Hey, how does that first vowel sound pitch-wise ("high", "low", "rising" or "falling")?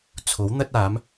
rising